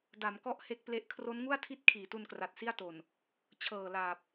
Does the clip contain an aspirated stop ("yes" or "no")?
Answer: yes